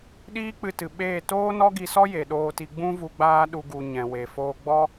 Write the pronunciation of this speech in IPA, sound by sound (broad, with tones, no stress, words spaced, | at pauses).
ɗiː˦k͡pɨ˧tɨ˨ ɓeː˦˨ toː˦nɔ˦ɡi˧sɔ˦ je˨ɗoː˧ti˧ ɡ͡bũ˦vu˧ ɡ͡baː˦ɗu˧ ɡu˨ ɲɛ̃˨we˨ foː˧ ɡ͡bɔ˦